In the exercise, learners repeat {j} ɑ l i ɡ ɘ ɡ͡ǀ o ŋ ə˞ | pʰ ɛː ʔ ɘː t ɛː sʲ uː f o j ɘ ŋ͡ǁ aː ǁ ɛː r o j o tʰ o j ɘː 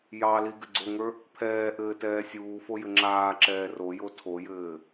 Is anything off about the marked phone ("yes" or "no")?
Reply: no